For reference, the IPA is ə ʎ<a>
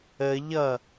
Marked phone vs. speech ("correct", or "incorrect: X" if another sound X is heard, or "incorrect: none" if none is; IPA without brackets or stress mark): incorrect: ʌ